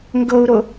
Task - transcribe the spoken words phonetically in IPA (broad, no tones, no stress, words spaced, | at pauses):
ŋɡɤu̯ɾo